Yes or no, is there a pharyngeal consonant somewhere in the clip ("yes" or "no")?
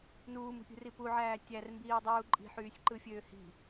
yes